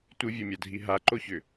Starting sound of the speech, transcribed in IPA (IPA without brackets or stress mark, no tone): tʷ